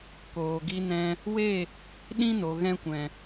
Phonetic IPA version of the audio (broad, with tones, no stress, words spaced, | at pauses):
koː˨ɡi˧ nɛ̃˧ | we˦˨ | ɗĩ˦no˨ ɣɛ̃˦kʷɛ̃˨